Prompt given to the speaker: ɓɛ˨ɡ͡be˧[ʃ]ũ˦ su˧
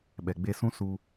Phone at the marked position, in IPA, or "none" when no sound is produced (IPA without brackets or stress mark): s